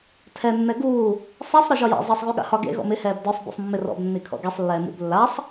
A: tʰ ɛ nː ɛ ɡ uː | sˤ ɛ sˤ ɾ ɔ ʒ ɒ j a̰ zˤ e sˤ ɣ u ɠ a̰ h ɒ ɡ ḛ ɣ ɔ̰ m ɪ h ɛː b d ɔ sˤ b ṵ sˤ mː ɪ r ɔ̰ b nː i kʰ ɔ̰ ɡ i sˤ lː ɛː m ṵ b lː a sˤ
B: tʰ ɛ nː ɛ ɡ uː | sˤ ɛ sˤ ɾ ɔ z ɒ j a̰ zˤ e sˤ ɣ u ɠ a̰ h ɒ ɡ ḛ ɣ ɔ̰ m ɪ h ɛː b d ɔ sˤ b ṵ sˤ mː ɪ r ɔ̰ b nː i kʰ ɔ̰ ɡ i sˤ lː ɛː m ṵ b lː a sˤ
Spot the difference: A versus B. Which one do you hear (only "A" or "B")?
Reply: A